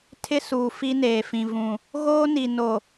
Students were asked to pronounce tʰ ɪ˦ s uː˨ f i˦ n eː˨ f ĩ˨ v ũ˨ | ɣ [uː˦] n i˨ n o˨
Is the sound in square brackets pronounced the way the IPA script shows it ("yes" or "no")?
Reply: no